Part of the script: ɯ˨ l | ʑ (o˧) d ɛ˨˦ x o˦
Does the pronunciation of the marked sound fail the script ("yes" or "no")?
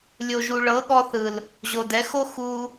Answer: yes